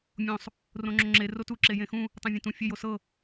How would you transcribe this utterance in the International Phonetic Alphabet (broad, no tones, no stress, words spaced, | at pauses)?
mʲõsˤ | rõŋ͡ǁoŋ͡ǁe rotu ǁejẽxũ | tˤẽvʲẽtũ fʲej osɤ